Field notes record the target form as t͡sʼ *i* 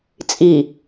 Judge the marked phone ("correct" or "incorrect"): correct